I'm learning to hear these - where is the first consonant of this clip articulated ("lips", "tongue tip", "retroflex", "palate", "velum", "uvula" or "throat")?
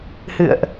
throat